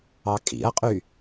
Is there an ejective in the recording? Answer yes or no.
yes